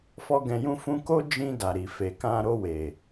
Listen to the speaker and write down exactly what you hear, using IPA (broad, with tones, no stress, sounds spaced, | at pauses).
f ɔ˦ ɡ ɛ̃˧ j ũ˦ f ũ˧ k o˦ d͡ʒ ĩ˧ d a˨ ɾ i˨ f e˨ k ã˧ ɾ o˧ w e˨